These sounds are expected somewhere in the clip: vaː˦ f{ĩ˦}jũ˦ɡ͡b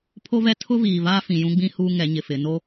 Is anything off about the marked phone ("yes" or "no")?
yes